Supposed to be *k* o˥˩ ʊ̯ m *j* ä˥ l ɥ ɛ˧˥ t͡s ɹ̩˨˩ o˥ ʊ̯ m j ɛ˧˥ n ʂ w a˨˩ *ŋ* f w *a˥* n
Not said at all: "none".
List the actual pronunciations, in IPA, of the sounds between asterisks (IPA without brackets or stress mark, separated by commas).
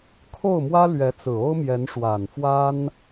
kʰ, w, n, a˥